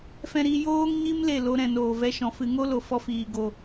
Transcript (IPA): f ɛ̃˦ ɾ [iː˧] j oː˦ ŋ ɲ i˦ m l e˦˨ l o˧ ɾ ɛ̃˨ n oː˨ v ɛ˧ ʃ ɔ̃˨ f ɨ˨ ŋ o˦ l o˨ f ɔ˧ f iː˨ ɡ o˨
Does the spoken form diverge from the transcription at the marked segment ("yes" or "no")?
yes